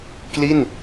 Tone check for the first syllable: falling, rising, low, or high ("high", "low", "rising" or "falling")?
falling